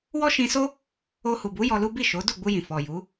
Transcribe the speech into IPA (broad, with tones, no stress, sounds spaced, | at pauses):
w ɔ˦ ʃ ĩ˧ s o˦ | o˧ h u˨ b u˨˦ j ɔ˧ l u˦ b i˦˨ ʃ o˨˦ d u˦˨ ɡ͡b u˧ j ĩ˨ f ɔ˨ j u˨˦